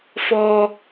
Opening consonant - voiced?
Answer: no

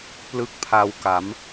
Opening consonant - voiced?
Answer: no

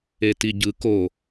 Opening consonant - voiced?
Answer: no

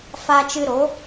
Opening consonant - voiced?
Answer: no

